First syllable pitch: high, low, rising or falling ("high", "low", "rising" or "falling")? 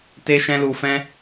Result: high